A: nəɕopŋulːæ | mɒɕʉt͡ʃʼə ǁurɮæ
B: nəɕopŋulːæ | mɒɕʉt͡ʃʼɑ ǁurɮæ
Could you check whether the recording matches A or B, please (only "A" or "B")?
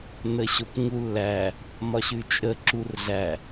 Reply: A